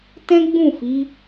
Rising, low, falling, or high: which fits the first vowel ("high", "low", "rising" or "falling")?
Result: high